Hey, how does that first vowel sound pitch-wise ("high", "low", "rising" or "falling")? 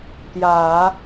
low